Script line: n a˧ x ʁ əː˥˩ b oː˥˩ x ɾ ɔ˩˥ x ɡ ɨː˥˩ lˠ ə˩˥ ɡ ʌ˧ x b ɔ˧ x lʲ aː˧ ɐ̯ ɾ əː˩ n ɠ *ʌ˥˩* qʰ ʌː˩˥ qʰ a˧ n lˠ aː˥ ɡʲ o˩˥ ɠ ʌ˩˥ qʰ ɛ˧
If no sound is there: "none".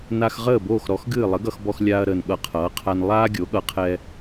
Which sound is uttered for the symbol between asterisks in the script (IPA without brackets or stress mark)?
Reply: ʌ˧